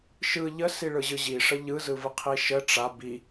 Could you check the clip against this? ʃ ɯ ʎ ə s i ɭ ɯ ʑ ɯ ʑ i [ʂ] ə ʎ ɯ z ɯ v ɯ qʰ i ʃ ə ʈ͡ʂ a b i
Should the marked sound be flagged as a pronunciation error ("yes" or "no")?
no